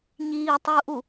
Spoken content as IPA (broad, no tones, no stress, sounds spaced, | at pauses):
ɲ iː tˤ uː ʔ u